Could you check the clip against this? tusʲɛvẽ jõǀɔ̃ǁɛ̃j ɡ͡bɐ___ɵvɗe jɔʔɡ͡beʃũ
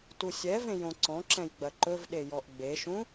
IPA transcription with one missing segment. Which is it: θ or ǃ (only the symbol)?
ǃ